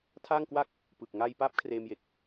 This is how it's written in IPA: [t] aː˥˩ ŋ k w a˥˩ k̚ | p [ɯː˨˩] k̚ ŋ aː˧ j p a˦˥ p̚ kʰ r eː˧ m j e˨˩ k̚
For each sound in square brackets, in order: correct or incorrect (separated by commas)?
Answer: incorrect, correct